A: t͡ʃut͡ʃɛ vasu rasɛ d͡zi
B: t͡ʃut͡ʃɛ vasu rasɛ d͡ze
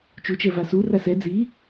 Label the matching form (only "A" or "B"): A